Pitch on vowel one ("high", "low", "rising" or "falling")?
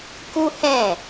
high